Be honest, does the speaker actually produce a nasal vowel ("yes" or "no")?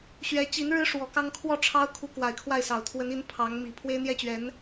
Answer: no